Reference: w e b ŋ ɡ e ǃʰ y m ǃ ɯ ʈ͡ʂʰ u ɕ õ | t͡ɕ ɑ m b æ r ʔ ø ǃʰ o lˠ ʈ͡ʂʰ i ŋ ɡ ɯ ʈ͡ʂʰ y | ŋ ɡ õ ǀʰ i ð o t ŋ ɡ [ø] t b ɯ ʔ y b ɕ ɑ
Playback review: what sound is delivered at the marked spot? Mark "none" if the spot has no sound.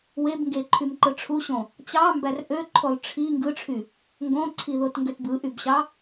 ø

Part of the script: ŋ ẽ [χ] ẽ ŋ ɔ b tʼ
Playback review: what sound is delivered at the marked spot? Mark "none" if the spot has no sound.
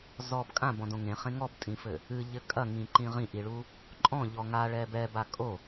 χ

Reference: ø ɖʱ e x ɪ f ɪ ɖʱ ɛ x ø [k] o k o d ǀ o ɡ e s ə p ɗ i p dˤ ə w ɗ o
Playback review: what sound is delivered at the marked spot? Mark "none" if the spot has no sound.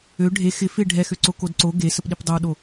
ǀ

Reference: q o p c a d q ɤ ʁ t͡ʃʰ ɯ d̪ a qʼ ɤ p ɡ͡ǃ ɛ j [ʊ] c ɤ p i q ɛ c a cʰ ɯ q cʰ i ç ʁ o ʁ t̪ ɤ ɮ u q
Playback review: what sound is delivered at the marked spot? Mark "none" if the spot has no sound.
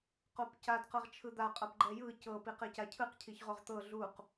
ɯ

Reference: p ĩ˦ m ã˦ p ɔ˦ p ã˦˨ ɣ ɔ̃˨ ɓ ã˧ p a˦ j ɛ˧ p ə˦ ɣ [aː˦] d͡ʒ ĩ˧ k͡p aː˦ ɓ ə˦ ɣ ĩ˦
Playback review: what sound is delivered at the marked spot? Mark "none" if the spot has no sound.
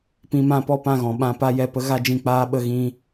a˦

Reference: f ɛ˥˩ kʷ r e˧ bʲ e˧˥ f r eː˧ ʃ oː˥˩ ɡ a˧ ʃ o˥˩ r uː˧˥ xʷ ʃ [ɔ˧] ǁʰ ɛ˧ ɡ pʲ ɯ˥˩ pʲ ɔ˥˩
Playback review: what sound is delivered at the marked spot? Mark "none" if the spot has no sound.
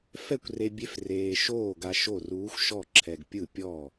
ɔ˥˩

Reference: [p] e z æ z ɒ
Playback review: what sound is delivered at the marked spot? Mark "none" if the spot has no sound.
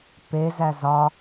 p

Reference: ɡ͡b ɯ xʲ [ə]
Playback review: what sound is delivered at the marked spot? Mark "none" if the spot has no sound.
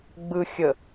ə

